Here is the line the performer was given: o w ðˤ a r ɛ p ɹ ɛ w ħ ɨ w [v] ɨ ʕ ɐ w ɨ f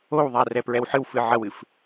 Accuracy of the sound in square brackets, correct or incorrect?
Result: incorrect